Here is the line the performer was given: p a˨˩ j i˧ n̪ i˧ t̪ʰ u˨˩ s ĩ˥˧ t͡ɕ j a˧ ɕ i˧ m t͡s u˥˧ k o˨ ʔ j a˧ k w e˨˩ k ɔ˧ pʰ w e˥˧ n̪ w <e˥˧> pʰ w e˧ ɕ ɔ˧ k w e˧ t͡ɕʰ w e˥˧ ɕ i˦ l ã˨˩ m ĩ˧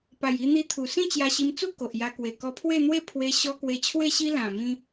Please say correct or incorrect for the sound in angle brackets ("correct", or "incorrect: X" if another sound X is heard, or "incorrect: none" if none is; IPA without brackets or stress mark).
correct